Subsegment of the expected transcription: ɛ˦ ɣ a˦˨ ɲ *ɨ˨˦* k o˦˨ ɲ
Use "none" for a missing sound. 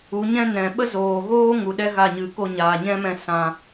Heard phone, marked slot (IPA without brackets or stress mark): ɨ˨˦